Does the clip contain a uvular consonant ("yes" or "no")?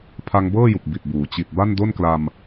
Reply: no